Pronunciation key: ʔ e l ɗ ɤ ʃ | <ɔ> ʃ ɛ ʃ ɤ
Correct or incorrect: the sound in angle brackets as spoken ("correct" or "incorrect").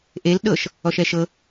correct